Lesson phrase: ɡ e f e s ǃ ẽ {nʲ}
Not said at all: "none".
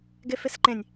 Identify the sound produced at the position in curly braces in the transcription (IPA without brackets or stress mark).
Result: nʲ